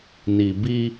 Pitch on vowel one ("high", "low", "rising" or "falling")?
low